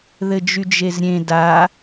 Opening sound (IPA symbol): ð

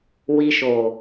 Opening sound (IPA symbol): w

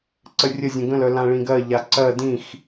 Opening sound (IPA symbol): ǀ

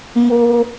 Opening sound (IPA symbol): m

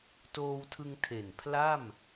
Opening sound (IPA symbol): t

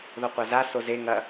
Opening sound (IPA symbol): ð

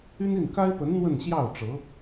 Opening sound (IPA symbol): y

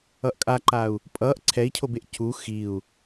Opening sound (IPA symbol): ʌ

